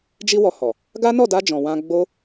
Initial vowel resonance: oral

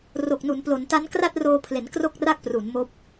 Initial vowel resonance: oral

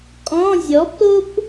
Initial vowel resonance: nasal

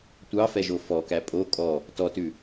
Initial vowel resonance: oral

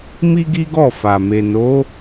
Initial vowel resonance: oral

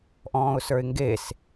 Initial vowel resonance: nasal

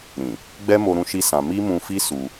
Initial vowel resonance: nasal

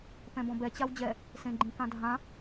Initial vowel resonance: nasal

